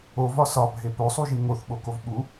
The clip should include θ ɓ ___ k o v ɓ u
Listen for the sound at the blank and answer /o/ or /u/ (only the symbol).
o